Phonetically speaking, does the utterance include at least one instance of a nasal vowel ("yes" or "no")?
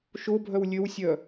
no